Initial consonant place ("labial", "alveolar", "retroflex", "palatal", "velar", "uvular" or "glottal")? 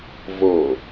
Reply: labial